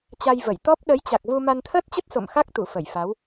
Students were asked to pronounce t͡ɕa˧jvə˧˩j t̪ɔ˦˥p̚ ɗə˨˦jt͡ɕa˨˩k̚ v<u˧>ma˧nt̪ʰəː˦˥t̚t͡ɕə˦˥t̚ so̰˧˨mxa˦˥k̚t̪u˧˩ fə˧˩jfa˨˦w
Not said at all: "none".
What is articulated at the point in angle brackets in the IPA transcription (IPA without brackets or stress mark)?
u˧